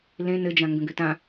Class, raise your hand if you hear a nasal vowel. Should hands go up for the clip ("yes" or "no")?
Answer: yes